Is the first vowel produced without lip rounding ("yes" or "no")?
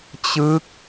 yes